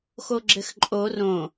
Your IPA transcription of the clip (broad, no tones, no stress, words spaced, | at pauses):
xoɡ͡ǁɘxǃʼo rõ